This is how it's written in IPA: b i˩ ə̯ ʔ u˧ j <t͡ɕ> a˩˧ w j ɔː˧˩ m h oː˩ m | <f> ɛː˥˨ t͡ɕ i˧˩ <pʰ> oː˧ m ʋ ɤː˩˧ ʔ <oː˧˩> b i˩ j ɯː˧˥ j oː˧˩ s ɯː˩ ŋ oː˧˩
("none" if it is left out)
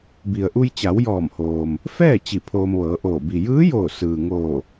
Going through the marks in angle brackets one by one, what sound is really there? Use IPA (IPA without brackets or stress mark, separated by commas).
t͡ɕ, f, pʰ, oː˧˩